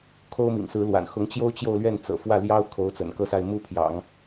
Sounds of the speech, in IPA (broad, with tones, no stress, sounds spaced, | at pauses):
kʰ o˥ ʊ̯ m ḭ˨˩ ŋ s ɹ̩˧˥ l w a̰˨˩ n x ʊ˧˥ ŋ t͡ɕ j o˥ ʊ̯ t͡ɕ j o˥˧ ʊ̯ l ɥ ɛ˥˩ n t͡s ɤ̰˨˩ f w ä˥˩ l j ɑ˥ ʊ̯ kʰ o˧˥ ʊ̯ t͡s ə̰˨˩ n k ɤ˥˧ s a˥˧ ɪ̯ m u˥˩ pʰ j ɑ̰˨˩˦ ŋ